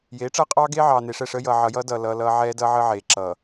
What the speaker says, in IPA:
jeː˨˦ʈ͡ʂʌː˦qʼɑː˦ɡe˦ ʕɑː˨ne˨ʂɛ˦˨ʂəː˦ jʌː˨ʕʌ˨jʌː˦dʌː˨ lʌː˦lʌː˦ ʕɛː˦dʌː˦ʕəː˦ʕeː˨ ǁʌː˨

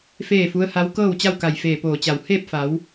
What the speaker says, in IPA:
feː˥˨fu˧˥ə̯ha˧˥w kɤː˥˨wt͡ɕa˥˨wka˧˩j feː˧˩poː˧˩t͡ɕa˧˩w heː˥˨p̚fa˩˧w

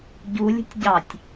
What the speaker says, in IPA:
ɟu lʲə̤tʲɟɑtʲ

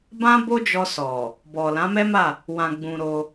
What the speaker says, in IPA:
bã˦bo˦d͡ʒɔ˧sɔ˨ | bɔ˨ lã˨˦mɛ˦ma˦˨ | wã˧ɡ͡bũ˧ɾo˧

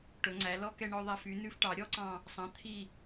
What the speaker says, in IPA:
ʈɵ˩˧ŋ͡ǀæ˩˧lɔ˥ kɛ˧ɳɔ˧ðˤæ˧f y˩˧nʉ˧f ʈɑ˩˧ɾʲɔ˥ǀɑ̃˧˩ | sˤɑ̃˩˧ t̪ʰi˧˩

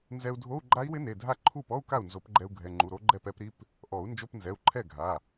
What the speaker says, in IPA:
nzɛ˧u̯dʱo˧˥˧u̯ ɡ͡ǃa˦˥i̯wɪ˦˥ne˩˧˩dʱa˥˩ ǃʰu˥˩pɔ˧˥˧u̯ka˥˩u̯ nzo˨˩˦pɡ͡ǃɛ˧u̯ ɡʱɛ˩˧˩ŋ͡ǃu˩˧˩ ɾo˦˥ɡ͡ǃɛ˥˩pɛ˦˥pɾi˧˥˧p | ʔɔ˨˩˦u̯ nd͡ʒo˧˥˧pnzɛ˩˧˩u̯ǃʰɛ˥˩ ɡʱa˩˧˩

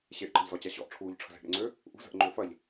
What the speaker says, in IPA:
ɕeʔǃə̤ʎzɔ t͡ɕaɕɔ̰ʔʈ͡ʂʰuːʎ ʈ͡ʂʰə̤ze̤ʔɾḛŋ͡ǀø | ʔṳzə̤ʔ ŋ͡ǃʏːfɐʎ

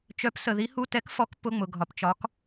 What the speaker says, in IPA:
t͡ʃœ˧˥psə˧ ði˧˥hu˧˥˧ tɛ˧˥kfɔ˧˥k pʊ˧˥˧ŋ͡mʊ˧ɡʱɒ˧pt͡ʃɒ˧˥k

